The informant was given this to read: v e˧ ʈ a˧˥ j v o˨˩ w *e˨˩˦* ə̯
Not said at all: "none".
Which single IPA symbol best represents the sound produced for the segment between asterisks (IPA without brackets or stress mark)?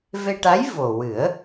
ɨ˨˩˦